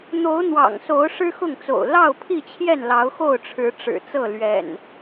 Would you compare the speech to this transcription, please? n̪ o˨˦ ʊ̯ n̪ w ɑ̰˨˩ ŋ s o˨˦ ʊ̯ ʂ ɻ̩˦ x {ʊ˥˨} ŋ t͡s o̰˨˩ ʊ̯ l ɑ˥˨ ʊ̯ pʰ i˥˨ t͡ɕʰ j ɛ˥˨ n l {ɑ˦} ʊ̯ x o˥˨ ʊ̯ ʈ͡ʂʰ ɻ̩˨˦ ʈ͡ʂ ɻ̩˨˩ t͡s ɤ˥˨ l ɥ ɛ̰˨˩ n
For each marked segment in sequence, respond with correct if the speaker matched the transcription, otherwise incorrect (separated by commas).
correct, incorrect